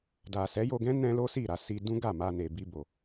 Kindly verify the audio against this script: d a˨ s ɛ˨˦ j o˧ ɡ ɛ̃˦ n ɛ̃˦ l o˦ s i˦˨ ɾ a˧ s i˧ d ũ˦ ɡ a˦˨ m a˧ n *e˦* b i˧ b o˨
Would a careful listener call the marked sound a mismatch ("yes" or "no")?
yes